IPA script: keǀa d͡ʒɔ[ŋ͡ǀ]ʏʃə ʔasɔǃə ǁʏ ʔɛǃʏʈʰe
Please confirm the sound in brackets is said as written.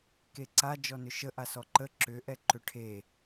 no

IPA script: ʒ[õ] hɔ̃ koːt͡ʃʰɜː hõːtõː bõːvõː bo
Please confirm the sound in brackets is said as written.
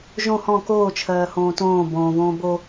yes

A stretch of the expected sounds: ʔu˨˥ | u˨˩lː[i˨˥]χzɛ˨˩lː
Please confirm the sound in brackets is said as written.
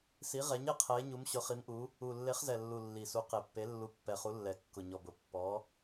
no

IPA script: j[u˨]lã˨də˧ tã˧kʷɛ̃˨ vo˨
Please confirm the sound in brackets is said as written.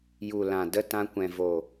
yes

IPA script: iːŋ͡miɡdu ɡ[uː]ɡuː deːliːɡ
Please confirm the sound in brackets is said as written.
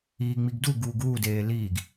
yes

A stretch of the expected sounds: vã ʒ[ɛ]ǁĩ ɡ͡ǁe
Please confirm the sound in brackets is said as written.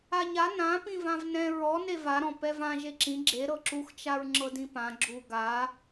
no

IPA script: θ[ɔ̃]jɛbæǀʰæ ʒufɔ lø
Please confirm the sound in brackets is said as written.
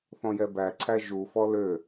yes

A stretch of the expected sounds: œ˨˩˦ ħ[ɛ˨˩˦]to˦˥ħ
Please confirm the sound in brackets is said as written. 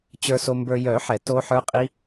yes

